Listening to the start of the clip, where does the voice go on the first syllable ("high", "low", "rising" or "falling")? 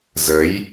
rising